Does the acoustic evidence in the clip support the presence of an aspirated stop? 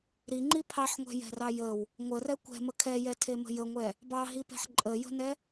yes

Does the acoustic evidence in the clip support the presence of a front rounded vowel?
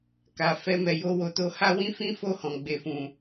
no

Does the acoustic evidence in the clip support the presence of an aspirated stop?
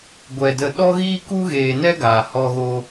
no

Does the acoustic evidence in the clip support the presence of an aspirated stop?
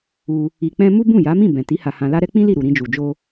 no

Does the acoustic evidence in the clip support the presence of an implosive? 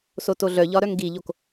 no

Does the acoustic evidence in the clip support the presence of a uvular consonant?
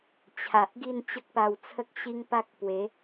no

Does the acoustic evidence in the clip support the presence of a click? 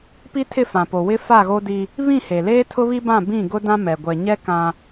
no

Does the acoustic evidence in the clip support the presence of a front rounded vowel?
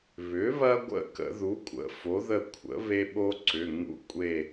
yes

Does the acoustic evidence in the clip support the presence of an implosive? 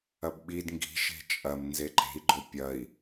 yes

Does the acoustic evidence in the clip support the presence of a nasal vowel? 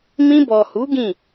yes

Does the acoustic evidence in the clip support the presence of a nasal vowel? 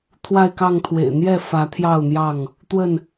no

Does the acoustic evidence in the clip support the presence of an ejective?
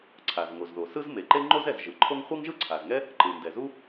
no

